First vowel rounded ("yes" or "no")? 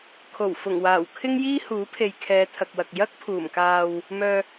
yes